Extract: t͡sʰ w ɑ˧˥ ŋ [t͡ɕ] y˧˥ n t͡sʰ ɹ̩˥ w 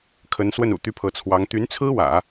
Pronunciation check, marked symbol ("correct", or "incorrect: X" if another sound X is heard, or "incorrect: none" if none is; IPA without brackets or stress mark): incorrect: t̪